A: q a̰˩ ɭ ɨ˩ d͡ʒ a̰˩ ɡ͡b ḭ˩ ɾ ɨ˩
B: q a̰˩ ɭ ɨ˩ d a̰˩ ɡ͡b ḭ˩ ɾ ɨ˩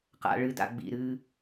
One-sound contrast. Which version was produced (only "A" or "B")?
B